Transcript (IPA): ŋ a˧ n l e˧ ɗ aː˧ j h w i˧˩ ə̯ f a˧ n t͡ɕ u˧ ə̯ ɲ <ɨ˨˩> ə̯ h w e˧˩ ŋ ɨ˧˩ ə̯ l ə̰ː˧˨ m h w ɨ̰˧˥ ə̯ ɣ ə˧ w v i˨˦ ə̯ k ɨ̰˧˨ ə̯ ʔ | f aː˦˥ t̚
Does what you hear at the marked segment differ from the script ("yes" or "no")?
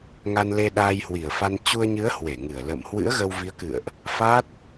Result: yes